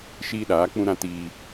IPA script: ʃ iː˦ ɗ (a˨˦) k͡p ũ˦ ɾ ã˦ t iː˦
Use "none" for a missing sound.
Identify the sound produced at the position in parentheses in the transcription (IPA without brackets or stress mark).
aː˨˦